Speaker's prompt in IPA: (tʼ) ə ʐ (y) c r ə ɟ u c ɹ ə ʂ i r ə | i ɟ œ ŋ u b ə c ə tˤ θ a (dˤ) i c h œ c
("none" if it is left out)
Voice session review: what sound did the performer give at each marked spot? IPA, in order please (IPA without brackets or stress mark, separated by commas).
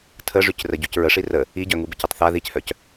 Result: tʰ, y, ð